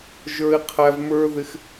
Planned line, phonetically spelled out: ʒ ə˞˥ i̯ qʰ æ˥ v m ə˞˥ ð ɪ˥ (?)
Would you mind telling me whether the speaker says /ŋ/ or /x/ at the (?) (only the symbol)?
x